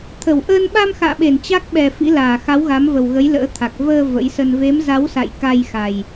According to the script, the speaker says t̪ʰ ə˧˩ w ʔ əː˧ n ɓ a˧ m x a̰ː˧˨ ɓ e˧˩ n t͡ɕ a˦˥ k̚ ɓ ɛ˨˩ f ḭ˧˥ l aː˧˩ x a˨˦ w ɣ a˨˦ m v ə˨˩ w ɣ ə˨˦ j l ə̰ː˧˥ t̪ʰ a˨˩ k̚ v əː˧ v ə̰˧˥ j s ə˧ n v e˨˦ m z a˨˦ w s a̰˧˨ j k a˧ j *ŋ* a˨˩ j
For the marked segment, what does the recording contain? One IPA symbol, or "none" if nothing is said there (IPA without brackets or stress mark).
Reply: x